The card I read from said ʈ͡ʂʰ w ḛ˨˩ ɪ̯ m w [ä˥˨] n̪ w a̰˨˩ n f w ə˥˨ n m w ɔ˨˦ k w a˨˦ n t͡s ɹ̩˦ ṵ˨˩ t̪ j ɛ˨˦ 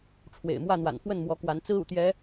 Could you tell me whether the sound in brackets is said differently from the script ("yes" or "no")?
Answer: no